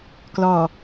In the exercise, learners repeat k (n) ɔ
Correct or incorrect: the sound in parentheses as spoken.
incorrect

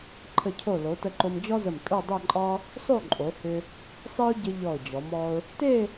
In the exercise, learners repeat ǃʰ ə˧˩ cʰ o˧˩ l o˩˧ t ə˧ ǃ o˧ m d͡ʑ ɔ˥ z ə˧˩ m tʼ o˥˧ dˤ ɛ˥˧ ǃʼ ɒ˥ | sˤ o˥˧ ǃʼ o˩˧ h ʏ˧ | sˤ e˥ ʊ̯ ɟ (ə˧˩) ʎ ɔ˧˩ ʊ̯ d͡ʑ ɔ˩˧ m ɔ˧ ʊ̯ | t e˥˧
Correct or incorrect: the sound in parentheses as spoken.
incorrect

